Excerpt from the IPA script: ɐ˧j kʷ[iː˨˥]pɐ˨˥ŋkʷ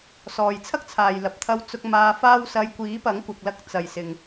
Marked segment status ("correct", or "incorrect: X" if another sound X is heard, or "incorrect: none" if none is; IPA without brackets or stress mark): correct